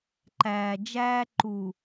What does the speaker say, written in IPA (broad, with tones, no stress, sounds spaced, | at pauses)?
ǃ æː˨ d͡ʒ æː˦ ǃ u˨